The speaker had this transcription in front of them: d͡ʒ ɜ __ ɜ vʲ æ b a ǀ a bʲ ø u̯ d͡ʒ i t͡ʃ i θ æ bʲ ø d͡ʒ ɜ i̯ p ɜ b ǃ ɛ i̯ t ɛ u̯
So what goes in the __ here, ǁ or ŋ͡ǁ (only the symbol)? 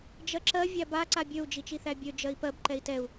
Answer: ǁ